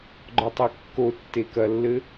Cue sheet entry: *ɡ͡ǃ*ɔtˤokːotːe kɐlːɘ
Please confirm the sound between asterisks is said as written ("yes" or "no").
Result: yes